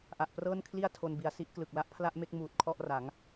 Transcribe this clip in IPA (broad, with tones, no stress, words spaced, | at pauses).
ʔa˨˩ʔprɤː˥˩nkʰli˥˩a̯ tʰo˧nbi˨˩a̯si˥˩ʔ klɯ˨˩k̚la˥˩ʔpʰla˥˩ʔme˥˩k̚ muː˨˩t̚kʰɔ˥˩ʔra˩˦ŋ